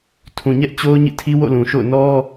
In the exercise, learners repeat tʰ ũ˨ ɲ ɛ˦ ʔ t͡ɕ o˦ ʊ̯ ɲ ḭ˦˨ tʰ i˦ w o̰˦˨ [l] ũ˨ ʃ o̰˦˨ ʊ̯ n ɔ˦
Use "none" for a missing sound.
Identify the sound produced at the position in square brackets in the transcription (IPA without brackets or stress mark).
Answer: l